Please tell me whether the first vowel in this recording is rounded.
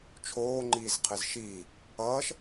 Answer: yes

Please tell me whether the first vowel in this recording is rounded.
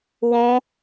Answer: yes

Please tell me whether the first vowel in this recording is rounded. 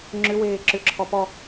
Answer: yes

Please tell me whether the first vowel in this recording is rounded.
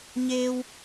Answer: no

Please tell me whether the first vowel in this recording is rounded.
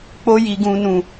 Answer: yes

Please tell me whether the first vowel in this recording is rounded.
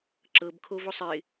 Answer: no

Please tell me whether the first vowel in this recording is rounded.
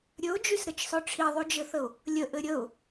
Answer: yes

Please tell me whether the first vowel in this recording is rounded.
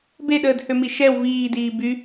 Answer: no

